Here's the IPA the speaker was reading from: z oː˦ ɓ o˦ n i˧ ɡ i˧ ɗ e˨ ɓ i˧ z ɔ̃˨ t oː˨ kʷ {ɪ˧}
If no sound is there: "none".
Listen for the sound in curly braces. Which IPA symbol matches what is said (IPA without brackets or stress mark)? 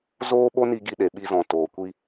i˧